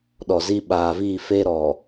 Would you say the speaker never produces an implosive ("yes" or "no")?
no